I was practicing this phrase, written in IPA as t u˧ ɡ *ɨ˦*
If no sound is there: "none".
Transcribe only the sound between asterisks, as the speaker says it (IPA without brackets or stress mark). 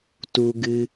ɨ˦